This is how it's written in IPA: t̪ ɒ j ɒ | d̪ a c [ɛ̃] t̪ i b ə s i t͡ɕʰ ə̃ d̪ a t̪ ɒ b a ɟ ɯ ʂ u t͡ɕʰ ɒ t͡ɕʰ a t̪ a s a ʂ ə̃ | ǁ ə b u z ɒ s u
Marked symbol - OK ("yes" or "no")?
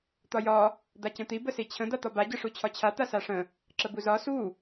no